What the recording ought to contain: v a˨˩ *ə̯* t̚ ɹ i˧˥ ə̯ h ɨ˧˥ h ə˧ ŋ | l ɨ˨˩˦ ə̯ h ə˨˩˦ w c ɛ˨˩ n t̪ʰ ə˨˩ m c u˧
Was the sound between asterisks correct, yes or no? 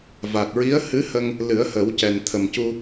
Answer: no